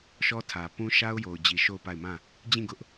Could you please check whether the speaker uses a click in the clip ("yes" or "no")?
no